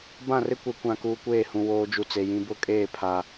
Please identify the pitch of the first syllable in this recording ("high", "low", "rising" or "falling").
falling